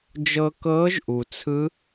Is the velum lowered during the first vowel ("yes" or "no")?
no